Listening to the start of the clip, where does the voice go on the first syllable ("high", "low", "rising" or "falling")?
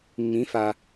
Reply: rising